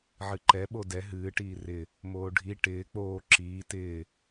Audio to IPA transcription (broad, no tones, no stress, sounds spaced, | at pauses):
ʕ ɨ ǃ ɛ ɓ o d ɛ ɦ ɨː ʈ iː r ɪ | m oː ɖʱ i ʈ ɪː k͡p oː ǁ iː t ɪː